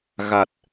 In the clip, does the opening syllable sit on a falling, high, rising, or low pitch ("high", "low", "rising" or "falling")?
low